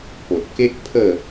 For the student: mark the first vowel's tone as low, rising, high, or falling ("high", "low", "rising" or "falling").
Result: low